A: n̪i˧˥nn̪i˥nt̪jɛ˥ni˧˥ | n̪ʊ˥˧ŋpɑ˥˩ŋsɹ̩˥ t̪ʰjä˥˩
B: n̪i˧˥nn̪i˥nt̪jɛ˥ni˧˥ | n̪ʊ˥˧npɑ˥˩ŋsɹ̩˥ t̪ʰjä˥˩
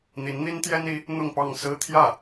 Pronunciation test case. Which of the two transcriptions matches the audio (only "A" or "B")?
A